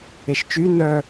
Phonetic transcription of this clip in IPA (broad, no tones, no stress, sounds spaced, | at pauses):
e ʃ t͡ʃ y n œ